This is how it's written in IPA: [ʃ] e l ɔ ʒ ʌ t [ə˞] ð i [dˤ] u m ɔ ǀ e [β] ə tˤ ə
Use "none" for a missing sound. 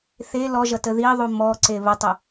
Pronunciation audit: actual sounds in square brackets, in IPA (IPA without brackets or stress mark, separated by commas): θ, ə, ðˤ, β